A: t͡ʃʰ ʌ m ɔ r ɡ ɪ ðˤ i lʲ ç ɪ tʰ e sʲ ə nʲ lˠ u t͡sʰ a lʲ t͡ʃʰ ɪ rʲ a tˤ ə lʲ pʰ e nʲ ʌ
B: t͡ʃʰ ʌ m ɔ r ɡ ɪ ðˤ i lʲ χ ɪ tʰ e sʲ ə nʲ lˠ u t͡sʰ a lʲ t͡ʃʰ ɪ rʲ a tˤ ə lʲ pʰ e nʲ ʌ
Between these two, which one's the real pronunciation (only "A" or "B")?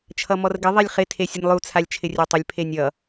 B